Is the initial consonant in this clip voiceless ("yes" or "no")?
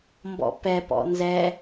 no